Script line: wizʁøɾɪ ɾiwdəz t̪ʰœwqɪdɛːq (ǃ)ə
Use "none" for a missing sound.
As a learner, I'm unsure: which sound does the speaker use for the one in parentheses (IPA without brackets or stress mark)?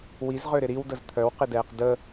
d